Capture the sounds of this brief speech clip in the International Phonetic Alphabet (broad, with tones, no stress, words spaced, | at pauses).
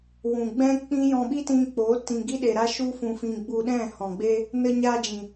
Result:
wũ˨ɡ͡bɛ̃˦ k͡pĩ˦ jɔ̃˧ɓi˦tĩ˧ k͡po˨˦ tĩ˧ ɡi˦ɗe˨ɾa˦ ʃu˦fũ˧fĩ˧ ɡ͡bu˧ɗɛ̃˦˨hɔ̃˨ɡ͡be˦ | nə˧ɲaː˧d͡ʒĩ˨